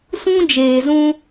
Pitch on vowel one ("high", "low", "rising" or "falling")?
high